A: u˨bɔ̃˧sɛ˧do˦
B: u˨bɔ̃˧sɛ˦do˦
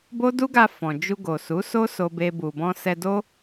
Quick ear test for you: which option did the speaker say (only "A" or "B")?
A